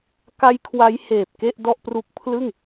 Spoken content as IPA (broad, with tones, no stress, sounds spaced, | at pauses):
k a˦˥ j kʰ w a˦˥ j h eː˨˩ p̚ k e˥˩ ʔ d ɔ˥˩ ʔ p r u˦˥ k̚ pʰ l ɯ˥˩ ŋ